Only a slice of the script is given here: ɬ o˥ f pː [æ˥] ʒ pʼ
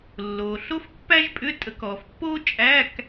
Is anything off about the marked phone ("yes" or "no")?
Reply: no